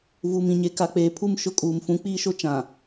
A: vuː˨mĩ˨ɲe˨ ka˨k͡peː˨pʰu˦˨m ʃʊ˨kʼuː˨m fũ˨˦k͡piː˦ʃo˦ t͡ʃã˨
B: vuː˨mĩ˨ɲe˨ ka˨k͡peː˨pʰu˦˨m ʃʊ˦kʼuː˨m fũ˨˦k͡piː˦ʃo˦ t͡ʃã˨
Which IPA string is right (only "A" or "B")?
B